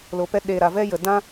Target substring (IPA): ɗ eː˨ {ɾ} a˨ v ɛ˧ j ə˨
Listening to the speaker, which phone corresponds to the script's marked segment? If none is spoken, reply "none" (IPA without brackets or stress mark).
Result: ɾ